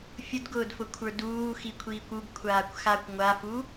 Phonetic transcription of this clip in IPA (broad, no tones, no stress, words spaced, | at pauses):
fʲʊdɡʊːdfʊkʷʰə˞ duːxikʷʰiːkʷ ubkʷʰaːkʷ xakʷ ŋʷafu